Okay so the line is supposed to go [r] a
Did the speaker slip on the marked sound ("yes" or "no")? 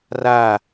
no